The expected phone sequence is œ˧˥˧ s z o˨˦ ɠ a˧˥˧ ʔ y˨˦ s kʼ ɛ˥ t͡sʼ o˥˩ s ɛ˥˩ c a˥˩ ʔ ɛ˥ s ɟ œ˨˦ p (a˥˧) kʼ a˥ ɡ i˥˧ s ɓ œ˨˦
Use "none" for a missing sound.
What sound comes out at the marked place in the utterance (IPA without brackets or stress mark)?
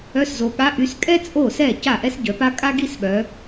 a˥